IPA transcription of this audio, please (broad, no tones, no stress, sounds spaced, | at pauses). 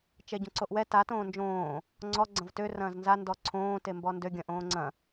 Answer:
t͡ʃ ɛ ɟ õ ǀ o ʔ w ɛ t a t õː n d͡ʒ õː | ŋ͡ǀ ɔ ɡ͡ǀ ɐ̃ v t ø r ɐ̃ː z n z a n d ɔ ǀʰ õː t e m b ɔ n d ø ɡʲ ɐ̃ ʔ õː ŋ͡ǀ ɐ̃